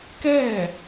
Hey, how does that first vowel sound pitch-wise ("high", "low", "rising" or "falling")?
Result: falling